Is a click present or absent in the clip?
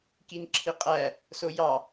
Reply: present